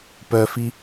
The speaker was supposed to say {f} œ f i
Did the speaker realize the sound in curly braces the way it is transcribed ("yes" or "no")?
no